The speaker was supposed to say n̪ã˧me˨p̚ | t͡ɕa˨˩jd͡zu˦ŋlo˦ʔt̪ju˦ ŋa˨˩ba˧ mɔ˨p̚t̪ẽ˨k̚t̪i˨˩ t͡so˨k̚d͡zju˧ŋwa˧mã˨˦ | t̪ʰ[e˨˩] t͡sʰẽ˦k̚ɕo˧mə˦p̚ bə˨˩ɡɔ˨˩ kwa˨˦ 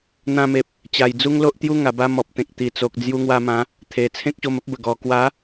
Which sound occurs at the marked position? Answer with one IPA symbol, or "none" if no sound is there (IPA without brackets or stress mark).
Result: e˨˩